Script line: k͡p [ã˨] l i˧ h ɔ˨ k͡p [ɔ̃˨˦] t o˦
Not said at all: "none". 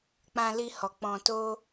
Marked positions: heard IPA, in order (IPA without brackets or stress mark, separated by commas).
ã˧, ɔ̃˧